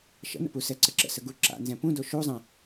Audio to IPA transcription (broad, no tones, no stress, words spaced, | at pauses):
ʃə̰nə̰pu sɛǀəǁə̰sə ɡuǁa̰ nzɛ̃pũdo ʃuzˤɛ̃